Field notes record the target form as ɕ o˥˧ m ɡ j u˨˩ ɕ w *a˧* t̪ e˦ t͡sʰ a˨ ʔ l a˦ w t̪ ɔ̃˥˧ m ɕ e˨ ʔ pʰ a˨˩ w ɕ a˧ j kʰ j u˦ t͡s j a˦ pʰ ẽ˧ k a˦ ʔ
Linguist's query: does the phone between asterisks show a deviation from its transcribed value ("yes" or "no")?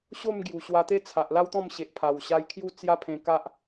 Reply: no